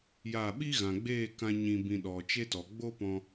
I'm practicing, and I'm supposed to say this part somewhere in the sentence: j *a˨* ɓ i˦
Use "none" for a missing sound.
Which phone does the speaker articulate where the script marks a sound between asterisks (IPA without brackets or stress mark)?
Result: a˦˨